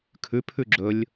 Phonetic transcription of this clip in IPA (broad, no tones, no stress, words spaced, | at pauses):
kʰʉ pʰʉɡ͡ǁɵlʲ